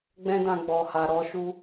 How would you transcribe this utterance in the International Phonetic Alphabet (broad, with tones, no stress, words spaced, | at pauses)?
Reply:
ɡ͡bɛ̃˧dã˨ ɡ͡bɔ˨ha˨ɾɔ˨˦ ʃu˦